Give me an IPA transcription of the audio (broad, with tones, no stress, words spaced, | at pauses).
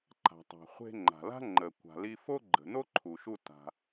ǃa̤˩tˤa̤˩χʷe̤˧ ŋ͡ǃa̤˩la̤˥ŋ͡ǃə˩ kʷa̤˩li˧fo˥ɡ͡ǃə̤˩ no˥ǃʰu˩ʃu˧ ta̤˩